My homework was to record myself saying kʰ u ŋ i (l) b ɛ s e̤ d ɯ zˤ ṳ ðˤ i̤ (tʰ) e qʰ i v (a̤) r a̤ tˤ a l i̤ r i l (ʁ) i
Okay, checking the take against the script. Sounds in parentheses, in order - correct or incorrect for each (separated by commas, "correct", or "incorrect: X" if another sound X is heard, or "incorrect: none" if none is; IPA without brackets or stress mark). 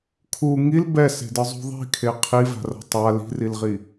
correct, incorrect: kʰ, correct, correct